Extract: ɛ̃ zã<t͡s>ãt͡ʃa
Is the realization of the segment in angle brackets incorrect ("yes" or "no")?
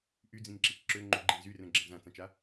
no